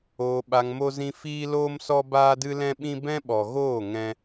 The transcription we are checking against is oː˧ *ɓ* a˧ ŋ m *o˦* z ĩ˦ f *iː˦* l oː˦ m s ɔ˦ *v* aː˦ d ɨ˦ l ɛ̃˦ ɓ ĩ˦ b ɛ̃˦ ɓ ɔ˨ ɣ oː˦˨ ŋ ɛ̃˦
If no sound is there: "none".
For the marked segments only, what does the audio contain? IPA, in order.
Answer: ɓ, o˦, iː˦, b

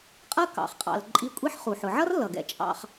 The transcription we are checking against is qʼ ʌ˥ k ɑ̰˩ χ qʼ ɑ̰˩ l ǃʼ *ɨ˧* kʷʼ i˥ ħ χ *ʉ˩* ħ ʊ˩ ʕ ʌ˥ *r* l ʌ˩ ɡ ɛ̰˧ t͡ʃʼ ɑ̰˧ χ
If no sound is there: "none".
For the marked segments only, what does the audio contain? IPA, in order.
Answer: i˧, u˩, r

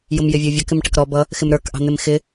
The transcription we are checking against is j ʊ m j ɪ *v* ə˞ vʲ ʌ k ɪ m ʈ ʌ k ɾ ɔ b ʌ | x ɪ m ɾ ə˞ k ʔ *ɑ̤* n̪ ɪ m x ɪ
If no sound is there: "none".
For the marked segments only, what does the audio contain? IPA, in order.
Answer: vʲ, ɑ̤

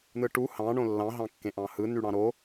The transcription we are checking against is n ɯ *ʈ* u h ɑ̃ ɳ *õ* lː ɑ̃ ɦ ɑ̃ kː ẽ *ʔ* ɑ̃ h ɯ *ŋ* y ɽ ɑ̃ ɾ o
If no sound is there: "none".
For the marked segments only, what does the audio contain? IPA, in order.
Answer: ʈ, õ, ʔ, n

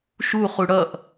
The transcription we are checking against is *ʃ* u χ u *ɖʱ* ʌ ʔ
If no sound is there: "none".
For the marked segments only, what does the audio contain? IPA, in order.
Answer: ʃ, ɽ

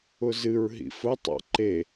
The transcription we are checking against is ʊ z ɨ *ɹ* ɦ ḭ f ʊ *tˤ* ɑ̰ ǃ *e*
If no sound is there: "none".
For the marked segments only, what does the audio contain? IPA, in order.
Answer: ɹ, tˤ, e

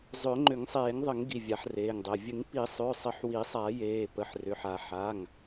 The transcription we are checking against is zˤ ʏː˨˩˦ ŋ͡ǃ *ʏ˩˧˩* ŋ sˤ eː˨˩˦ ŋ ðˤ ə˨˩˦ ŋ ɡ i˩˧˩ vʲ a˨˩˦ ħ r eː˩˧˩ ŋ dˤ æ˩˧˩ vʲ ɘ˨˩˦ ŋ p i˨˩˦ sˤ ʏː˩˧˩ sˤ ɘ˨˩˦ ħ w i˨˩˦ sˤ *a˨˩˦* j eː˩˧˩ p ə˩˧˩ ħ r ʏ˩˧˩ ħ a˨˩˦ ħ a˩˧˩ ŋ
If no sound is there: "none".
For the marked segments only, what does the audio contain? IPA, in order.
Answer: ʏ˨˩˦, a˨˩˦

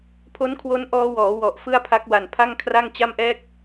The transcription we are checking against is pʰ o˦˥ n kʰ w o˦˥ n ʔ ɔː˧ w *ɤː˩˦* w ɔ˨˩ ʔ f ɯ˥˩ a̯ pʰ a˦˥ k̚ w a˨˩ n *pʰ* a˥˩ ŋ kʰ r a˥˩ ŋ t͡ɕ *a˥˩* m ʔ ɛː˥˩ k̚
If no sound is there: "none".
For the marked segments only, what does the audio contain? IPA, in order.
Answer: ɔː˩˦, pʰ, a˥˩

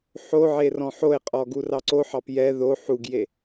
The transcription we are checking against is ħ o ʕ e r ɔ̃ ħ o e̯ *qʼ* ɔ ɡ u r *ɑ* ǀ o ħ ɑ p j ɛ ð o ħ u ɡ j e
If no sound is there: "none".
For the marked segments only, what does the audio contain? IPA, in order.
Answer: qʼ, ɑ

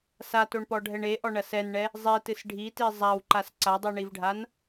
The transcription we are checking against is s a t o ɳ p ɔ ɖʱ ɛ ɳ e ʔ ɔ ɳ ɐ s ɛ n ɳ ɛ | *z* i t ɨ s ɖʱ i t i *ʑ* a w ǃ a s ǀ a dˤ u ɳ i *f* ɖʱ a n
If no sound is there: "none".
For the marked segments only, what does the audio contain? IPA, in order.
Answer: zˤ, zˤ, v

